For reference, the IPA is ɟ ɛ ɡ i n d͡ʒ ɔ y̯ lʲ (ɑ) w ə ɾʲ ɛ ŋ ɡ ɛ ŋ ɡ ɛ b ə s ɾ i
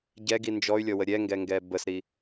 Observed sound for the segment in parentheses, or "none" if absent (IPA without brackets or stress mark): ɔ